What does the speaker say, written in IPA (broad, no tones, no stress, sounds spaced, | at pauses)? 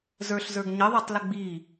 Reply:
z ə˞ ɬ z ə˞ ɡ ɲ ə ðˤ ə˞ tˤ l ə ɡ͡b i